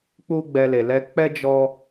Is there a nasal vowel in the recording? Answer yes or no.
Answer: no